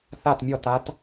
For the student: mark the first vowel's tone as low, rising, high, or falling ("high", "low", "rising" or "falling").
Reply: falling